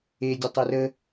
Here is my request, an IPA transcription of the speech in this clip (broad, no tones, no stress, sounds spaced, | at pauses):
e dʲ ə tˤ ɛ r ə